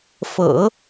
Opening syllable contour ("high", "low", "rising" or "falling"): low